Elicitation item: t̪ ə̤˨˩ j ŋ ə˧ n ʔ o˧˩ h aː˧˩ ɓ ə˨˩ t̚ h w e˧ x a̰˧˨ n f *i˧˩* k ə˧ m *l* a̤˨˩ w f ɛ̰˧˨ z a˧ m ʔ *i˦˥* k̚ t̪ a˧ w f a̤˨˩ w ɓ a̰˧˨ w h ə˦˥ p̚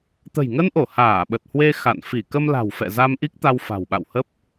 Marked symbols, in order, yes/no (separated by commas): yes, yes, yes